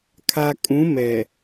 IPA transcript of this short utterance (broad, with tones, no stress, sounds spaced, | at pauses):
kʰ a˨ kʼ ũ˨˦ m ɛ˨